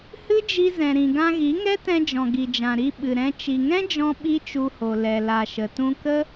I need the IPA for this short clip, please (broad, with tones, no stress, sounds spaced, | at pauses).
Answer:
h ɨ˦ d͡ʒ i˧ z ɛ̃˨ ɾ ĩ˨ ɡ ã˧ ɣ i˨˦ ŋ ɛ˦ t ɛ̃˧ d͡ʒ ɔ̃˨ ɡ i˨ d͡ʒ ã˨ ɾ i˧ ɓ ɨ˨ ɾ ɛ̃˧ t͡ʃ i˨ ŋ ɛ̃˦ d͡ʒ ɔ̃˧ ɓ i˦ t͡ʃ u˧ h o˨ l ɛ˨ l a˨ ʃ ə˨ t ũ˧ k ə˦